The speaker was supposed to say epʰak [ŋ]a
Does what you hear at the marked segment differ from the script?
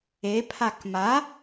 yes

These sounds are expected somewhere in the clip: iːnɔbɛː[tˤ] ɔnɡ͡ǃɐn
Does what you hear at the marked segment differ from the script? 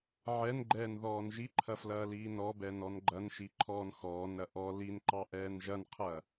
yes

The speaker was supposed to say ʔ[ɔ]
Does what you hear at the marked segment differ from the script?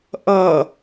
yes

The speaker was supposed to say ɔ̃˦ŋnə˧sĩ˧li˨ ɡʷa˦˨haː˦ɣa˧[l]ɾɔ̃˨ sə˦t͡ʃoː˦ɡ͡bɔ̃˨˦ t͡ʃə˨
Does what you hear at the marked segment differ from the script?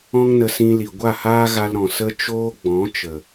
no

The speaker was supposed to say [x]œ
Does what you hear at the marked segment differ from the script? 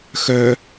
no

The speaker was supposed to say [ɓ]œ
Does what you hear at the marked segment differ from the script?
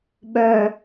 no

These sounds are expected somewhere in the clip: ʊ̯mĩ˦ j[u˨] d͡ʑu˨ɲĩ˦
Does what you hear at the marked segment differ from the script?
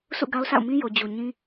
yes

